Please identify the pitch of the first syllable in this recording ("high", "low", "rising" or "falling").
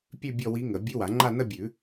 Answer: falling